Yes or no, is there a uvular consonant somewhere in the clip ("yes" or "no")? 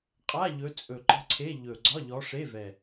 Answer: yes